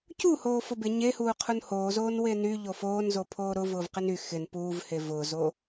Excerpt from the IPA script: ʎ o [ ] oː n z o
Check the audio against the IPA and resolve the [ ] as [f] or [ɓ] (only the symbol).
f